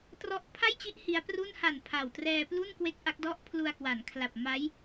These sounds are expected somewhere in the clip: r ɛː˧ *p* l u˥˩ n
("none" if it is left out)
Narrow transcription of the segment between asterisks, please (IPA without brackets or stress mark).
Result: p